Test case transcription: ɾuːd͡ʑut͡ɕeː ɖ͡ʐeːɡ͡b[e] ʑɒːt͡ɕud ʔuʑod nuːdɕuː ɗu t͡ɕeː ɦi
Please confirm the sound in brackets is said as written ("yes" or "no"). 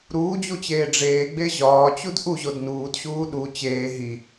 yes